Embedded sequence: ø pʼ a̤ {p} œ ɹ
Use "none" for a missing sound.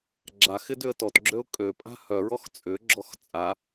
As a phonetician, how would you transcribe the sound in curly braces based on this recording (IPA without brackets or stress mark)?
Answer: h